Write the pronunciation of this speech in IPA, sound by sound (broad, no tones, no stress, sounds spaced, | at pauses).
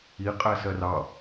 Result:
i qʼ æ s ɜ r ɑ